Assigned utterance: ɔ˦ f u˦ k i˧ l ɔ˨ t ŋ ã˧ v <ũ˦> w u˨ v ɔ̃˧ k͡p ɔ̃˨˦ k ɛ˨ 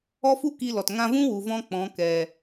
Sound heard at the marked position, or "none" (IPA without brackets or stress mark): ũ˦